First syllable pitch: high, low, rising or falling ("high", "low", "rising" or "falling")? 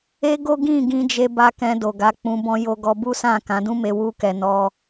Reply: high